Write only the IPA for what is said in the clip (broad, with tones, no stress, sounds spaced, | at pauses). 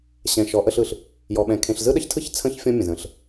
ɕ ɛ̃˨ ʃ ɔ˨˦ ʔ ə˦ ɬ ɯ˨ ɬ | j ɔ˨ ɓ ɛ̃˨ kʰ ẽ˨ ɬ z ɯ˦ ɗ ə˦ ç tʰ ɯ˦ ç t͡sʰ ə̃˦ ç fʲ ɔ̃˦ mʲ ə̃˨ z ə̃˨˦ ɬ